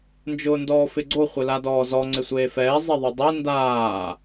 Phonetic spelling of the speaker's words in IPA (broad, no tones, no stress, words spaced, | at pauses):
nd͡ʒʊːndɔːfɪɡ͡ǀo χʷɪladɔːzɔ ŋ͡ǀɪsʷeːfɛː zˤeðˤudˤɛ ndaː